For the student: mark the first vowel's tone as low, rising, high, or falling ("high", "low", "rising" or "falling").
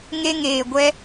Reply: high